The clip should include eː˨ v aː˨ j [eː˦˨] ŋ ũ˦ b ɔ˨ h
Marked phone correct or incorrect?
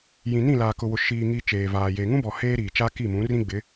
incorrect